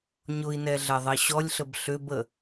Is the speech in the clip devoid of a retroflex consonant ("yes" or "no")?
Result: yes